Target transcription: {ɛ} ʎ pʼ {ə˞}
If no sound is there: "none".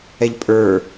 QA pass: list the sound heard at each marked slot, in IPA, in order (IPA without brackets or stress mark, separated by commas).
ɛ, ə˞